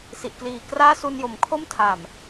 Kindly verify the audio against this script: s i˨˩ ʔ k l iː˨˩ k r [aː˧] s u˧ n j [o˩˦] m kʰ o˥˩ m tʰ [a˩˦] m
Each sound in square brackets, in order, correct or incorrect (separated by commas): incorrect, correct, incorrect